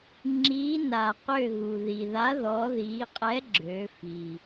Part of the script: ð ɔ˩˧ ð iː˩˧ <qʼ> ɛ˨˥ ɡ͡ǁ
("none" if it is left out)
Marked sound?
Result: qʼ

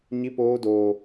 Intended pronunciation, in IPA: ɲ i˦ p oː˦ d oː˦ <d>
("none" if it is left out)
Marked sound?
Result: none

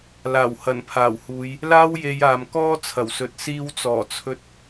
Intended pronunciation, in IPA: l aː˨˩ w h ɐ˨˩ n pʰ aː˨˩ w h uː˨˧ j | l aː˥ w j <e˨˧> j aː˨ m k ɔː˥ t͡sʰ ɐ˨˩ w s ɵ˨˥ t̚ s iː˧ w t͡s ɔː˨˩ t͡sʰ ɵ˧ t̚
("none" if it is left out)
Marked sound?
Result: e˨˧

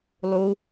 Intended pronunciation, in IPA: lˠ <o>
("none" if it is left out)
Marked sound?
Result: u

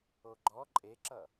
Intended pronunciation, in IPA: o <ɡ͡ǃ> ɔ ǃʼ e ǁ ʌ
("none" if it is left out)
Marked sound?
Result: ɡ͡ǃ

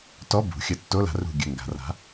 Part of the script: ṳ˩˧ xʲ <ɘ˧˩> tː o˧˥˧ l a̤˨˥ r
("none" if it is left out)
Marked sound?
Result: ɘ˧˩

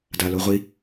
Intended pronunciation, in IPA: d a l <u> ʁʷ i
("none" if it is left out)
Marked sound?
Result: o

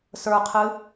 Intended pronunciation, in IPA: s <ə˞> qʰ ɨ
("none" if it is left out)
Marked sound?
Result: ə˞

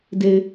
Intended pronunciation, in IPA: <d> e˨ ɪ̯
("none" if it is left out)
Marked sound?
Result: d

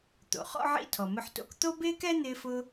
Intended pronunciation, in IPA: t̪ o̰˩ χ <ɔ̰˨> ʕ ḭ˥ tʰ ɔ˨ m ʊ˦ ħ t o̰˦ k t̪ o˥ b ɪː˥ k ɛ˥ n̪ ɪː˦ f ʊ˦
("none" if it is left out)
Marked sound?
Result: ɔ̰˥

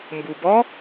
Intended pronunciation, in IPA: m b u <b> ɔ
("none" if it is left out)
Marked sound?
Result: b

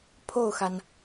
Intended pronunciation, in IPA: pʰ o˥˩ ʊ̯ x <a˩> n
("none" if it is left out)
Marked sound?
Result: a˩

